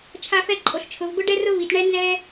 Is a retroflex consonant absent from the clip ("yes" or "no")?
no